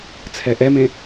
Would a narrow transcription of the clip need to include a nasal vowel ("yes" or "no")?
yes